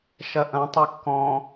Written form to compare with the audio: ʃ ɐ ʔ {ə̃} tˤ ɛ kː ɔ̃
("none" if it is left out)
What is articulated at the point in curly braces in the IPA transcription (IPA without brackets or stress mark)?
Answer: ɐ̃